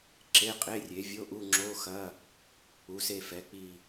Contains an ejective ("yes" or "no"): yes